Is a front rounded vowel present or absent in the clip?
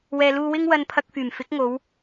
present